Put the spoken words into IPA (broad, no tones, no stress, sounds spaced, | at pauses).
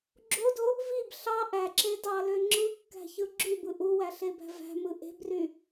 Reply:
ɡ͡ǁ o d o | v i b ɬ ɑ ʔ æ ǁ e d ɑ l ø ŋ͡ǁ ɯ kː æ̤ ç ɯ ɡ͡ǁ y b ɯ ʔ u w æ ɬ e b æ̤ v æ̤ m ɯ ʔ e̤ b r y